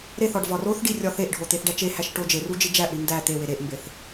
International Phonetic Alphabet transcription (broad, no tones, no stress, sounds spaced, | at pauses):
ɾ e θ ɒ ɖ v ɒ r o θ ɖ i rʲ ɒ θ e ʔ ɖʱ o t̪ e θ ɖ æ t͡ʃ e h æ ʃ ʈ o d͡ʒ e r u d͡ʒ i d͡ʒ æ ʔ ɽ i n d æ t̪ e w e ɾ e ʔ m b e θ